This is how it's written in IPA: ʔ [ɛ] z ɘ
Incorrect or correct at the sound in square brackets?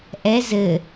correct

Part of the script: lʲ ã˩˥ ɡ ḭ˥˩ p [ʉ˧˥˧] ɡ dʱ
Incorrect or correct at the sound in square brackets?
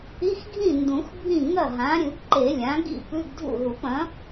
correct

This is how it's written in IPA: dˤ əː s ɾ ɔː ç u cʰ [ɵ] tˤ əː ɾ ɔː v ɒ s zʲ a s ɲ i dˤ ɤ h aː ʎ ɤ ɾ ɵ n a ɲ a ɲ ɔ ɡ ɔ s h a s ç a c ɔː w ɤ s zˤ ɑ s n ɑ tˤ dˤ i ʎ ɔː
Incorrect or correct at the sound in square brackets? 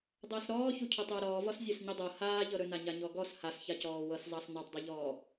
correct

